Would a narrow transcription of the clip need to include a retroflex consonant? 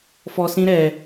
no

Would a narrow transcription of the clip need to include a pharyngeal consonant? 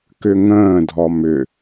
no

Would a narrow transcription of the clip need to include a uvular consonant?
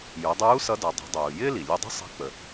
no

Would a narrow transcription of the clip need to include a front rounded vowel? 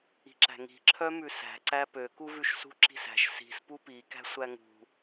yes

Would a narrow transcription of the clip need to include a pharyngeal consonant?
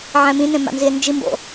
yes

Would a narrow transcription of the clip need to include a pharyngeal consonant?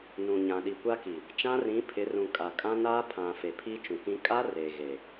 no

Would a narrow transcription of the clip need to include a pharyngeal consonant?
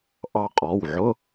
yes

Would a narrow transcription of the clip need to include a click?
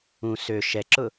yes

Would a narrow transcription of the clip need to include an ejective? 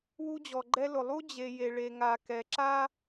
no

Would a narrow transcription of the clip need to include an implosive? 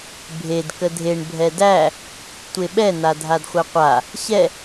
yes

